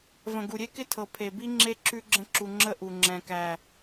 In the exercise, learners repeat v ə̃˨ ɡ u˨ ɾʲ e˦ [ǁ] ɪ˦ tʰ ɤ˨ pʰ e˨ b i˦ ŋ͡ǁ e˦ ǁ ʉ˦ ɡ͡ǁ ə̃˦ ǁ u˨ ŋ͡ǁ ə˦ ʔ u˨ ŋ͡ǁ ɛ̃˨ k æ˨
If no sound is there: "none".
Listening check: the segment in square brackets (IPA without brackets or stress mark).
k